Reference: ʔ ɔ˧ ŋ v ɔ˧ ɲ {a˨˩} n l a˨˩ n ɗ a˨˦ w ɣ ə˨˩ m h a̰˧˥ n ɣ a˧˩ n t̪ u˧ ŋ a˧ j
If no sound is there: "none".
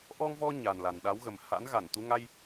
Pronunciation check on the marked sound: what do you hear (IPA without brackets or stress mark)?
a˨˩